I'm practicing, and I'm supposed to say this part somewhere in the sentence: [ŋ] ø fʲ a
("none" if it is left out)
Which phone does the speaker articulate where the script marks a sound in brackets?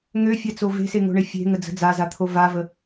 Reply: ŋ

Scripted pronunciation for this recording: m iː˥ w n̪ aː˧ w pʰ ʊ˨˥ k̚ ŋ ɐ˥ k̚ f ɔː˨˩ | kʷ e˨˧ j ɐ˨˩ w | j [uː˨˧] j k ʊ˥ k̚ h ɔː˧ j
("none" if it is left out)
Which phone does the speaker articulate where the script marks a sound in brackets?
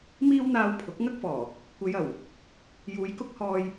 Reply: uː˨˧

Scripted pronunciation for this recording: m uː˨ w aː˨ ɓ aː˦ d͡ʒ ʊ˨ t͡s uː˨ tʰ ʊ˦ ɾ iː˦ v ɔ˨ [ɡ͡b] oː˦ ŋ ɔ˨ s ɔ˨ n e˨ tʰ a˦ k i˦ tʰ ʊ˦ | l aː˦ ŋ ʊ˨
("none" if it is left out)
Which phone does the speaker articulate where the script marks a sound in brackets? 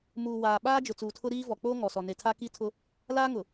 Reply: k͡p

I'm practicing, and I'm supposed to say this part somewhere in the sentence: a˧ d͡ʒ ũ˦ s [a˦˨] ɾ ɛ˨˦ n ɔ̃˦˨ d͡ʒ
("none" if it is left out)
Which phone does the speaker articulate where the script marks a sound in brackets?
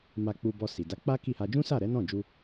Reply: a˦˨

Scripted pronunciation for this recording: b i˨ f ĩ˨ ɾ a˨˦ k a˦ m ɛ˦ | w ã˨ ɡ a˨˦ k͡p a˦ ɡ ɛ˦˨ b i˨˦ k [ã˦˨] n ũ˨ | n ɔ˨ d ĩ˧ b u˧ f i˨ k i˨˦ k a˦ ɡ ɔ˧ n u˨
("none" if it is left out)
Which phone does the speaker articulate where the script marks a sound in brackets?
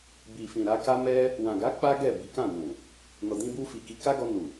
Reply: ã˦˨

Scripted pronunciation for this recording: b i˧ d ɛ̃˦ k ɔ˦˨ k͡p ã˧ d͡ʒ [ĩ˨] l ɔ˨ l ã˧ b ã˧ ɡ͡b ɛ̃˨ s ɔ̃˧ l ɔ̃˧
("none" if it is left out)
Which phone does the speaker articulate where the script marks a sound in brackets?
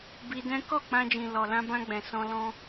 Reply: ĩ˨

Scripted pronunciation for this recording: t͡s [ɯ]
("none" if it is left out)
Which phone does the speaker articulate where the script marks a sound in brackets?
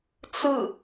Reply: ɯ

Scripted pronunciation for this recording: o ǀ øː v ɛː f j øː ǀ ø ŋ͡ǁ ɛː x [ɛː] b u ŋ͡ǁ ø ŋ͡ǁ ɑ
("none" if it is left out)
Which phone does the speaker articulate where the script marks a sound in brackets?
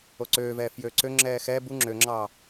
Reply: ɛː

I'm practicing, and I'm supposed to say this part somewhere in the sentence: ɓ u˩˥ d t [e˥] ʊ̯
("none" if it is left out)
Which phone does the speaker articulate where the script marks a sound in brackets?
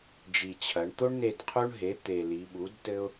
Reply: ɘ˥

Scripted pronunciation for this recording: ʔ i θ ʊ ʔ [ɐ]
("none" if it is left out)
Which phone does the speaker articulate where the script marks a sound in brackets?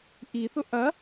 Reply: ɐ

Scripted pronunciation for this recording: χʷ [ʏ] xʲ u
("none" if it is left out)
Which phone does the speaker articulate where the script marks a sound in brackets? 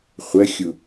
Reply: ə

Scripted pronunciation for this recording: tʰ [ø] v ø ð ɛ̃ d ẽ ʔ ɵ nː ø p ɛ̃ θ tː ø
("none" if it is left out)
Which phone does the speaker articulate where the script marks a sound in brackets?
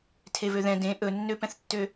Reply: e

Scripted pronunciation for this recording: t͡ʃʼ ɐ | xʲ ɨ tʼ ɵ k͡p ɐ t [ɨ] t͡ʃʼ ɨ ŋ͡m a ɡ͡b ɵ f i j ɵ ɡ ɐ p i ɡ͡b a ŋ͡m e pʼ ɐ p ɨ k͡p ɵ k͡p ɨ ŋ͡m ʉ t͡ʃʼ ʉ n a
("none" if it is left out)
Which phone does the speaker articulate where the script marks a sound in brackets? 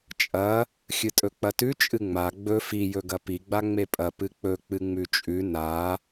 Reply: ʉ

